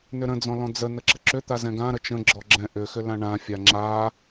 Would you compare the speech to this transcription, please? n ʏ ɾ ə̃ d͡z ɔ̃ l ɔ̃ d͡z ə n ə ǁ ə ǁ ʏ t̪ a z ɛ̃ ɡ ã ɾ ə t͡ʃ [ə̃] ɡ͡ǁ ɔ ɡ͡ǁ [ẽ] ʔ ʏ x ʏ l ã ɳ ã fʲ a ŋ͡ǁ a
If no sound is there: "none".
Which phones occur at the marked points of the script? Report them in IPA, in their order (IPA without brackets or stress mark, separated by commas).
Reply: ə̃, ɛ̃